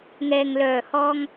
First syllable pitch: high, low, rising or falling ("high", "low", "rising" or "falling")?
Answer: low